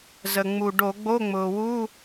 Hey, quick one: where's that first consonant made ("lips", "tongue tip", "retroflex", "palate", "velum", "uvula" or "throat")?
tongue tip